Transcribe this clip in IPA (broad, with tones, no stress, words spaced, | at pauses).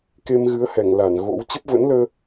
ke˧mɣɨ˨˦ə̯hɛ˧˩ŋ la˧˩n ɣo̰˧˥w t͡ɕə˦˥p̚və̰˧˥nləː˧